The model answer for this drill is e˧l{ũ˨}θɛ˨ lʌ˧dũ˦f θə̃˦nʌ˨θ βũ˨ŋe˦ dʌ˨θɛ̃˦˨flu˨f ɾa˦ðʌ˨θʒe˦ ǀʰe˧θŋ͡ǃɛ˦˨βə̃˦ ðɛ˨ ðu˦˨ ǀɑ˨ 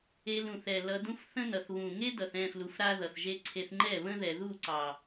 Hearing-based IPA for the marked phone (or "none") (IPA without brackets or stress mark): ũ˨